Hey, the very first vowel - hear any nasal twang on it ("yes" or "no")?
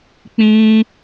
yes